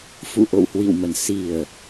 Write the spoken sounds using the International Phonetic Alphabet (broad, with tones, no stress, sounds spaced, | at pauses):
f ṵ˧˨ ʔ o̰˧˨ w h w ḭ˧˨ w m ə˨˩ n s i˨˩ ə̯